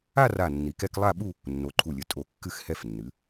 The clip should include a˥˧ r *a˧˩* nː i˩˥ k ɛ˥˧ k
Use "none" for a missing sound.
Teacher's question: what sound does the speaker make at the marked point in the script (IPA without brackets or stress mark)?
a˧˩